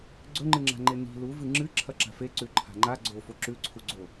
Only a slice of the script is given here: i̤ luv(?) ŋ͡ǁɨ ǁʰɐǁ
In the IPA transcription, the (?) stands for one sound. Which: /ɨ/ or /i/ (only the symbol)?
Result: ɨ